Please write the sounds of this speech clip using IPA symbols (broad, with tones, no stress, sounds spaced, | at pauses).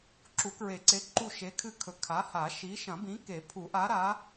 ǁ u˨˩˦ k ɹ e˨˩˦ ǀ e˨˥ ǃ u˦˨ ʃ e˨˥ kʰ ɨ˦˨ kʰ ɵ˨˩˦ kʰ a˨˥ h a˨˩˦ ʃ i˨˥ ʃ ɐ̃˨˩˦ b ĩ˨˥ k e˨˩˦ pʰ u˨˩˦ ʔ a˨˥ ɾ a˨˥